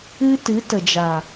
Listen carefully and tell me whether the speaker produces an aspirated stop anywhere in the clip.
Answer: no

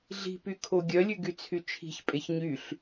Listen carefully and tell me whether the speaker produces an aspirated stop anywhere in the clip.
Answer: yes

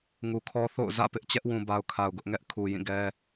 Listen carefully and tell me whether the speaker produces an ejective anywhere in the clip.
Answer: no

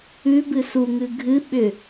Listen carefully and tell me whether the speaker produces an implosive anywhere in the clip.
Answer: yes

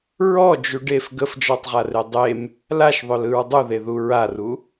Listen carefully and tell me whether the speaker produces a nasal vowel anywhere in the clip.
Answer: no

